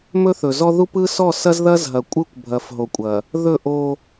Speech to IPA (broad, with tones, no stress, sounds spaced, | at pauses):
m ɵ˦ θ ɵ˨ z ɔ˦ ð u˦ p ɯ˦ s ɔ˦˨ s ɐ˦ z ð ɐ˦ z ɦ ɐ˨ kʷʼ ɯ˦ kʷ bʱ ɐ˨ f ɦ o˨ kʷʼ ɐ˨ | ð ɵ˦˨ ʔ o˦